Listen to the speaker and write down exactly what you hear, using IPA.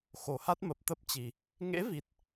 xo˨˩ha˦˥t̚mə˨˩p̚ t̪ə˦˥p̚t͡ɕi˨˩ | ŋḛ˧˥vi˨˩t̚

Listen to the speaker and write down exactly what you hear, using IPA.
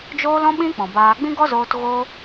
d͡ʒoː˦l ɔ̃˦ɓĩ˦ k͡pɔ̃˨baː˧ ɡ͡bĩ˦ɡɔ˦zoː˧t ɣo˦

